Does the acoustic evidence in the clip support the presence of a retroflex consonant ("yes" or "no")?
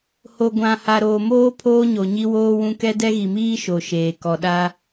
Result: no